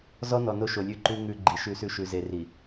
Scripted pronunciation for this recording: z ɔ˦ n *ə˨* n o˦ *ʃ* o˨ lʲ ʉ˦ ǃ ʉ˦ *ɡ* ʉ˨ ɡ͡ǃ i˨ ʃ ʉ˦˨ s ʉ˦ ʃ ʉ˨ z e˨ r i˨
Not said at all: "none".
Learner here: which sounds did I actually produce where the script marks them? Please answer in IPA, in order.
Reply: ɔ˨, ʃ, ŋ

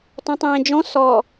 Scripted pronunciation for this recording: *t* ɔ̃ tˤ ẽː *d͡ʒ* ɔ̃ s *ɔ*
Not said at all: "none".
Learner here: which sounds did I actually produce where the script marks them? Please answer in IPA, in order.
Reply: t, d͡ʒ, ɔ

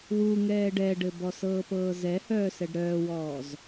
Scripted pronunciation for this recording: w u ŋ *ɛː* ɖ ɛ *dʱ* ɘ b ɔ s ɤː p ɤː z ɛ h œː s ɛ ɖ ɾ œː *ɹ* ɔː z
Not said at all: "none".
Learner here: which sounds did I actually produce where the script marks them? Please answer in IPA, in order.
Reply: ɛː, ɖ, w

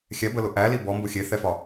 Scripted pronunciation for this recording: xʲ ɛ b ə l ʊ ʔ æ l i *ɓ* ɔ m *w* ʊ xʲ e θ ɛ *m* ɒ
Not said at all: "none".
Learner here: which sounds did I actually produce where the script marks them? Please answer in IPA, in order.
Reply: b, b, f

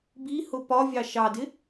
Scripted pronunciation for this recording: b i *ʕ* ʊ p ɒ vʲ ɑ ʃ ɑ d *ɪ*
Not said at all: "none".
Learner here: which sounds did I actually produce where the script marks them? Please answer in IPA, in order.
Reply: h, ɪ

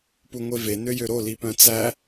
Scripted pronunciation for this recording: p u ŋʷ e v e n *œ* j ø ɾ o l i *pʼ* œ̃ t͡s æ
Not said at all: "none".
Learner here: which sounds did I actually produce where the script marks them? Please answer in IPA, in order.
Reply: ø, p

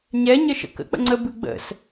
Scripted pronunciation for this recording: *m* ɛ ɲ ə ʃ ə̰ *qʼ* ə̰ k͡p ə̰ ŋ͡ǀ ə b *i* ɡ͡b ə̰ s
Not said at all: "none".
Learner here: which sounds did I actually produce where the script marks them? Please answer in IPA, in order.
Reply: ɲ, k, ɨ

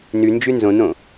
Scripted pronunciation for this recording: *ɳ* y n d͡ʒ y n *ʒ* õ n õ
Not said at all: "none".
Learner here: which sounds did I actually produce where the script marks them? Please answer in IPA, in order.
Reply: n, z

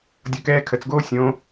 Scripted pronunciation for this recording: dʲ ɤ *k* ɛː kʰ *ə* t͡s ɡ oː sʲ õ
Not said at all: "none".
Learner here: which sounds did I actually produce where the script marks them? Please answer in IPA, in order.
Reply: k, ə

